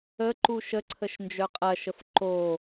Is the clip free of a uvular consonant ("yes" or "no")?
no